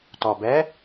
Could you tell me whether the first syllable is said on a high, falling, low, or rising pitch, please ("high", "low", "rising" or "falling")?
low